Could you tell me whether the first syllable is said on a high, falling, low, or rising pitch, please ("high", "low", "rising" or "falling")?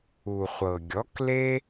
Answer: low